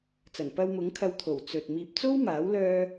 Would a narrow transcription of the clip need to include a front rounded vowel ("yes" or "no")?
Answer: yes